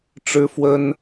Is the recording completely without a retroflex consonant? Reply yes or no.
no